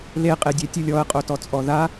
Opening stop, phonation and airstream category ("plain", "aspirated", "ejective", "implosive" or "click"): ejective